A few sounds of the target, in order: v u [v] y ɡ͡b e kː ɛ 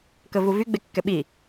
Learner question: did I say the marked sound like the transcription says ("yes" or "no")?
yes